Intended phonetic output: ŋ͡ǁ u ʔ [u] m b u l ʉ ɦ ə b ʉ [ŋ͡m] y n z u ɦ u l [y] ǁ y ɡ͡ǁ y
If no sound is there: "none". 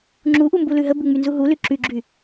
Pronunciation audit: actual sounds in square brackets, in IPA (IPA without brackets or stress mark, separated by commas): u, ŋ͡m, y